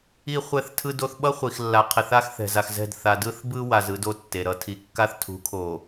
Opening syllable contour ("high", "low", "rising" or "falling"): high